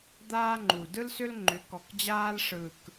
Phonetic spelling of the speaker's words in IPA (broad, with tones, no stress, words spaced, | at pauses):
d̪aː˥ŋ͡ǃu˨˩ dɯ˥lsʏ˥l ŋ͡ǃʏ˨˦kɔ˨˩kd͡ʑaː˥l ʂɯ˨˩k